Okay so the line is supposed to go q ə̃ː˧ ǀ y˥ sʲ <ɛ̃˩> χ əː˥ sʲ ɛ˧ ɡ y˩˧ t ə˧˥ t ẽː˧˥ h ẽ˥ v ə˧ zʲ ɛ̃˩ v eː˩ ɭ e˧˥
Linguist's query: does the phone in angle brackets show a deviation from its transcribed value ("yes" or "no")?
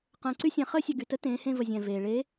yes